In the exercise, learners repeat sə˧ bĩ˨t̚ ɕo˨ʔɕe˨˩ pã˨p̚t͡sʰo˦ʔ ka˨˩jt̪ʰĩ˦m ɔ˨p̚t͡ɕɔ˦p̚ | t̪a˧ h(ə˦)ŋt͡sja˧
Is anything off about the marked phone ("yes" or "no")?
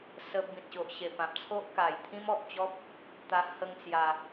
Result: no